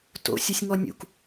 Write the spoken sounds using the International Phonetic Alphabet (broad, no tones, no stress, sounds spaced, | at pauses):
t o̰ sʲ u sʲ ŋ ɔ nʲ ṵ k